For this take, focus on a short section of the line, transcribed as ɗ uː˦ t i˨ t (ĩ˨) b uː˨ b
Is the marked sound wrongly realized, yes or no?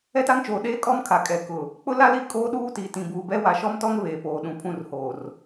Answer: no